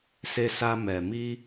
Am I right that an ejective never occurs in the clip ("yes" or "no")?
yes